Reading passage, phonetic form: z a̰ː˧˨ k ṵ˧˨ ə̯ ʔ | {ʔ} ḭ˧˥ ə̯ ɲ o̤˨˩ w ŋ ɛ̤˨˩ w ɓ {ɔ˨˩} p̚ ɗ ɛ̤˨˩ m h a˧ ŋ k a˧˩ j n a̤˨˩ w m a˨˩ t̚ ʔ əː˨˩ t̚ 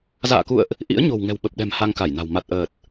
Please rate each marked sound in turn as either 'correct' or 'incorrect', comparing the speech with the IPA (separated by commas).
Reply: correct, incorrect